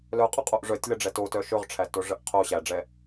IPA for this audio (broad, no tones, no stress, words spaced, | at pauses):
lœqʼʊqʼoʔ ʐœtʲləɖ͡ʐɛ totœ ʃɵʁʈ͡ʂʰætoʐəʔ qʰo ɕæɖ͡ʐɛ